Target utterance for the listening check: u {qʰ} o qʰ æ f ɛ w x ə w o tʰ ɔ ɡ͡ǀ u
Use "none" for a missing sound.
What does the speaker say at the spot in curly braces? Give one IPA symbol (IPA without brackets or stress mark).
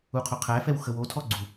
qʰ